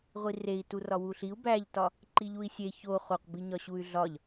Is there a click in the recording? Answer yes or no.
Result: yes